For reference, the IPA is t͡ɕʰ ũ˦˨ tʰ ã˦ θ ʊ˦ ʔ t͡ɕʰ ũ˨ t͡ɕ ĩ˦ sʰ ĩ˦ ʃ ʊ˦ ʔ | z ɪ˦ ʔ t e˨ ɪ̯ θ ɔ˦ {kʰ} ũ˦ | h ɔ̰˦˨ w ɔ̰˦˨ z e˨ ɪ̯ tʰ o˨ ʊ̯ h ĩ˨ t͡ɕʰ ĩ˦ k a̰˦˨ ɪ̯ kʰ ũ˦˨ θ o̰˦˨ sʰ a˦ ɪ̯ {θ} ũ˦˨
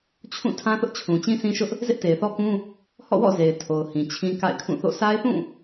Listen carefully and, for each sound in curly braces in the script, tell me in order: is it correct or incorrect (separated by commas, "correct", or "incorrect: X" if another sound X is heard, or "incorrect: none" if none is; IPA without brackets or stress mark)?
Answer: incorrect: k, correct